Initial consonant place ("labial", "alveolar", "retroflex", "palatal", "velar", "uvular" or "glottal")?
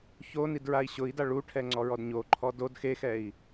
palatal